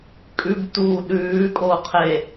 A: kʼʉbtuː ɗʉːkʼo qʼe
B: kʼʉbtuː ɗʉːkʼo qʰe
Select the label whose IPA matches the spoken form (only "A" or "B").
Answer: B